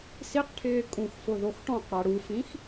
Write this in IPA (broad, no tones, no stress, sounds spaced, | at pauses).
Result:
s i q ʈʰ ɪː kʼ ũ x f ʊ ð o x ʈ ɔ̃ q ɽ a ɽ u f ĩ x